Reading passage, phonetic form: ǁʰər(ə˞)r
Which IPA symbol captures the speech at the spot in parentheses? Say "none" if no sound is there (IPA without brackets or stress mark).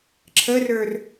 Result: ə˞